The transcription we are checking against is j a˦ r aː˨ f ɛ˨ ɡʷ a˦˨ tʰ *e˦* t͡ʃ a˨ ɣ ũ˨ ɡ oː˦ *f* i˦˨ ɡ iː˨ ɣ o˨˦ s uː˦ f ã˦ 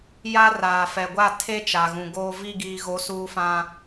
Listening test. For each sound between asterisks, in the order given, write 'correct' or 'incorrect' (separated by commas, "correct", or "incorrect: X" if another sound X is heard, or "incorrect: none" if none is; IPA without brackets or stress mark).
correct, incorrect: v